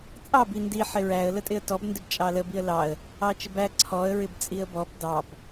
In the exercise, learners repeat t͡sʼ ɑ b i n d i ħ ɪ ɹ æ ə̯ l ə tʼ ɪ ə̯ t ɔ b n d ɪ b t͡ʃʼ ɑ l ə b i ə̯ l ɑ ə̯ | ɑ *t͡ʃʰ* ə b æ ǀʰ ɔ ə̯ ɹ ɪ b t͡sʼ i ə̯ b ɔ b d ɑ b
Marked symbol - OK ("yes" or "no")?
no